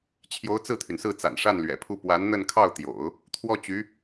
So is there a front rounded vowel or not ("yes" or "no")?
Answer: yes